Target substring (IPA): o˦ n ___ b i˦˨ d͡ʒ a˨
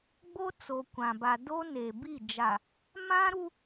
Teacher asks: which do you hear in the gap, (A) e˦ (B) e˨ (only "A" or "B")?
B